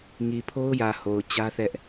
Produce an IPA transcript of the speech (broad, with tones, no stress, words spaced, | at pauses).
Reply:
ŋi˨pʰo˦ʊ̯jä˨ ho˨ʊ̯t͡ɕä˦θɛ˦ʔ